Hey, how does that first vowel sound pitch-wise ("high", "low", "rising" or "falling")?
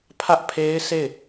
high